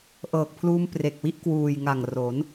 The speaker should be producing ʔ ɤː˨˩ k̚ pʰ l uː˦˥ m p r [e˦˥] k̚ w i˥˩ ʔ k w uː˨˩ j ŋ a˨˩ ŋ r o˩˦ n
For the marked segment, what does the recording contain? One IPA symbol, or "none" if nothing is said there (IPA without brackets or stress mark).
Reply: e˨˩